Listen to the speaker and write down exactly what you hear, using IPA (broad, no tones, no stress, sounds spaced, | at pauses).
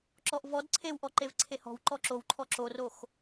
ǁ ɔ ʔ v ɔ d ǀʰ e w ʔ ɔ ǃ e v ǀʰ e h ɔ̤ w ǃ ɔ ǁ o w ǃʰ ɔ ǁ o r o x